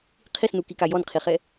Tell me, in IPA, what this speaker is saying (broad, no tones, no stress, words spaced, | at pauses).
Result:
qʰisnukika jɔnqʰiχɛ